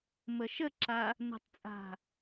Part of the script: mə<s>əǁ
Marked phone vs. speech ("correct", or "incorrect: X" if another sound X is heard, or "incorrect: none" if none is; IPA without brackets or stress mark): incorrect: ʃ